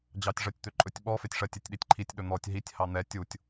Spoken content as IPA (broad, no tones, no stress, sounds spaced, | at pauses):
d͡ʑ ɑ tʲ ʐ ɜ tʲ t̪ ø ǃʼ ɵ tʲ ɓ ɔ f e tʲ ʂ ɜ tʲ e tʲ ɗ i tʲ ǃʰ i tʲ ɗ ɵ n̪ ɔ tʲ ɦ i tʲ h ɑ n̪ ɛ tʲ u tʲ